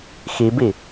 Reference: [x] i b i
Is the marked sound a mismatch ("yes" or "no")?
no